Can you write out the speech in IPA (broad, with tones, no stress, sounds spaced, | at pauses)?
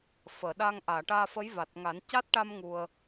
f əː˨˩˨ ɗ a˧ ŋ ʔ aː˨˩˨ ʈ aː˧ f ə˧˥ j v a˨˩ t̚ ŋ a˨˩˦ n c a˦˥ t̚ ʈ a˧ m ŋ u˧ ə̯